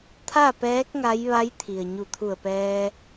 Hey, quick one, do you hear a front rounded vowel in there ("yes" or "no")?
no